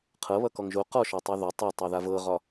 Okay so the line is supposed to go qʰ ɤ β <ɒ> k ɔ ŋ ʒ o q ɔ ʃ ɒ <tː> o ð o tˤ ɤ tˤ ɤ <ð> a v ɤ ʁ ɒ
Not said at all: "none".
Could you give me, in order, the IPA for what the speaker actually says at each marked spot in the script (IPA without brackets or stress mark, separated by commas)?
ʌ, tˤ, ð